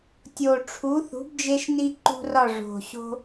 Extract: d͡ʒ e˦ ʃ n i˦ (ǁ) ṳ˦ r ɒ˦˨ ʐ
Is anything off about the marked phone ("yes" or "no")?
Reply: yes